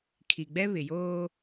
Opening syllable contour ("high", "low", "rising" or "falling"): low